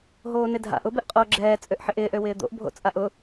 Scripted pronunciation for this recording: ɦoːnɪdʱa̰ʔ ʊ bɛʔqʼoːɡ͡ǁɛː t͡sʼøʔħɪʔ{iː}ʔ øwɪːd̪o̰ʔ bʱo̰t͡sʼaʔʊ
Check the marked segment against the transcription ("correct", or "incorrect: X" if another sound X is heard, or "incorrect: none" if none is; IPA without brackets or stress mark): incorrect: ɪː